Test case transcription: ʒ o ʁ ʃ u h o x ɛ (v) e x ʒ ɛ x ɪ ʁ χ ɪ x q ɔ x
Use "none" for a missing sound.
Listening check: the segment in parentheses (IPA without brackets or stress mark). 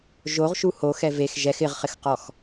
v